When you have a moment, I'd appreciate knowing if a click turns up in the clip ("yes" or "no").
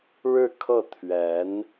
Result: no